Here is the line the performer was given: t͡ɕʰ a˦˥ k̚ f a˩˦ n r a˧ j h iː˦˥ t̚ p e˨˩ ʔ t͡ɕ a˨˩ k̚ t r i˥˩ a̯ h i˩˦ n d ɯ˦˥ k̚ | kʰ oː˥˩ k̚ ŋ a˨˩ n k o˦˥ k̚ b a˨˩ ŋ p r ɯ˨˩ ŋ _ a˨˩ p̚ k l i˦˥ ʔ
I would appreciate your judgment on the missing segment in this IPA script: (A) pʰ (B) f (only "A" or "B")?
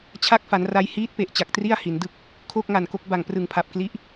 A